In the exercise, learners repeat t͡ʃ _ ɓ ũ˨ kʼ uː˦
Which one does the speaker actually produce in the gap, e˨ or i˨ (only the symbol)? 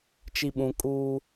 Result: i˨